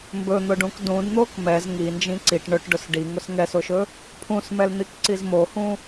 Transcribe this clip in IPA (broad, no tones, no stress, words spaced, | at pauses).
mbɵn̪ʊɖũk dũdn̪ok mɛz ŋind͡ʒĩ ǀiʈ ɳɵʈɖʊs ɖiŋʊs ŋɛsʊʃɵ | pʰũsmɛln̪ikǀiz mohũ